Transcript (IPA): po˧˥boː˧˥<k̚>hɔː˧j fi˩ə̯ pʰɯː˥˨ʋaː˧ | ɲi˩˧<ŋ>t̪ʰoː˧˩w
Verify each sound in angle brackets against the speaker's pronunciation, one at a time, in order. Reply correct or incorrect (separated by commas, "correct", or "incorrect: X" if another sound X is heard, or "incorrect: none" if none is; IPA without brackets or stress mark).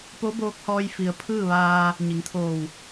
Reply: correct, correct